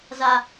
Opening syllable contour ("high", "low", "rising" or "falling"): high